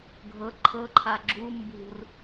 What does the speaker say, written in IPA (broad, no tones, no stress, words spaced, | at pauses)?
ɡʱɤ ǃʰɤ ǃʰaɡ͡ǁu mbṳr